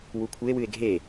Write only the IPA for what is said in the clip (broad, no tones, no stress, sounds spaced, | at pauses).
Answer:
w u kʷʰ ɨ e̯ w ɨ e̯ ɡʱ e